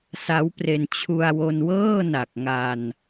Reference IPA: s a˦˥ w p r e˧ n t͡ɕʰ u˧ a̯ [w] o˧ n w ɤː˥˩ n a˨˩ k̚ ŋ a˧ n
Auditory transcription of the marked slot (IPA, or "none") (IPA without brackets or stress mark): w